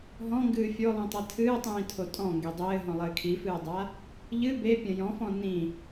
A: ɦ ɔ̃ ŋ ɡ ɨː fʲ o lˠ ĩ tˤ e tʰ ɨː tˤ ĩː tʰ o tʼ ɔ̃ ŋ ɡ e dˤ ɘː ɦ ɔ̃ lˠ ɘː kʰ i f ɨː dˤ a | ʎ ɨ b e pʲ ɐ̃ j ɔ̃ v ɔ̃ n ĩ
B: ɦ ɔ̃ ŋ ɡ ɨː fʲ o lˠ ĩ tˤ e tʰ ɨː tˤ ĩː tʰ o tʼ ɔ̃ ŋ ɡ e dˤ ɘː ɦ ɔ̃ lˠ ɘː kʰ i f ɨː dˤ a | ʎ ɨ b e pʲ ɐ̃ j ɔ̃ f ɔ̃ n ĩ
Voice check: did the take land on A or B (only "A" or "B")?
B